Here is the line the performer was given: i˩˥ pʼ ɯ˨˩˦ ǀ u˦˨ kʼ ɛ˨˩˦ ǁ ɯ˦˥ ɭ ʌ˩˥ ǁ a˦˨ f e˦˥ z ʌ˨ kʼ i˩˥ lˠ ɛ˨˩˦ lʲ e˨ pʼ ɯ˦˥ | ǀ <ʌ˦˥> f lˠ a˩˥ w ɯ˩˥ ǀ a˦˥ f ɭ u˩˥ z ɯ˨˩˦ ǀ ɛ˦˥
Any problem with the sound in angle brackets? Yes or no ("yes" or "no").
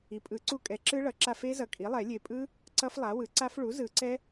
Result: no